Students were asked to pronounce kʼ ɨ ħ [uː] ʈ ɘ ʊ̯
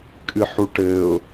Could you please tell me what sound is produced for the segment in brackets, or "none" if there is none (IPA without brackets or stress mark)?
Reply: u